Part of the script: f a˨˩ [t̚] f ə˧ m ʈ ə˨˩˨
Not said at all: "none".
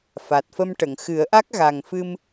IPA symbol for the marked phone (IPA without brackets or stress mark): t̚